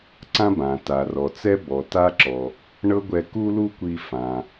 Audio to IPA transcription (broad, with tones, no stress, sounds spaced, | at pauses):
ǀ ã˥ b ã˩ t a˩ r ɔ˩ t͡s ɛ˥ b ɔ˩ t a˥ ǁ ɔ˩ | ɳ ɤ˥ ɡʷ ɛ˧ k u˥ l u˥ kʷ i˧ f ã˩